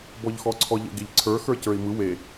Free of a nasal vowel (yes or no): yes